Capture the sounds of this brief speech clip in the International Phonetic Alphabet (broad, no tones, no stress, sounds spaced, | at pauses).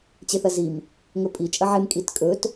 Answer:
t͡ɕ e θ ɐ z i m | ŋ ɵ pʼ i t͡ʃʼ ɐ ʕ e m kʼ i t kʼ ɵ t